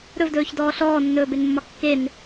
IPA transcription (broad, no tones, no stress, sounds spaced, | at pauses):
ɾ ɵ v d ɵː ç d ɔː ɬ ɔː nː ɵː b e n mː ɒ kː e n